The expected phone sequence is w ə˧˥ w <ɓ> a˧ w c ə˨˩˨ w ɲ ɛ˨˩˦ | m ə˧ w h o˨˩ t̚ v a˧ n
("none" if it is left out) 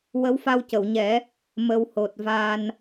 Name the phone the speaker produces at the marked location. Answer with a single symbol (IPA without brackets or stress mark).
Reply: f